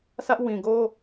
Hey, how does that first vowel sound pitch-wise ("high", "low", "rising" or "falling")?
high